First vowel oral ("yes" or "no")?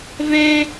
no